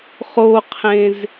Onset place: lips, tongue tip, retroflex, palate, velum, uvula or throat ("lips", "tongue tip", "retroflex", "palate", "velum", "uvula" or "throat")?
uvula